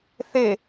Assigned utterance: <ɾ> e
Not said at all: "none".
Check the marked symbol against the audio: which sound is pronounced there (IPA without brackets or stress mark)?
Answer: θ